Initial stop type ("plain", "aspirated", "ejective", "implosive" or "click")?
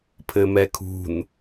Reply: aspirated